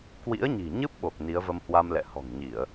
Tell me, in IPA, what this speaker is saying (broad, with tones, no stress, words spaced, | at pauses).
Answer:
kwḭ˧˥ə̯ɲi̤˨˩ɲɨ˦˥p̚ɓo˨˩k̚ ni˨˦ə̯və˧mhwa˧mlɛ̰˧˨ hɔ̤˨˩ŋɲi˧˩˨ə̯